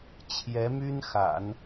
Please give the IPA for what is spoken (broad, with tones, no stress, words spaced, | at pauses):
t͡ɕʰjɛ˧˥my˥nxa̰˨˩˦n